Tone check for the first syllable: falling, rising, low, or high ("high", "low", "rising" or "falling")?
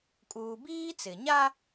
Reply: high